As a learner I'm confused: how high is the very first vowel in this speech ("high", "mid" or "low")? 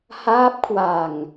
low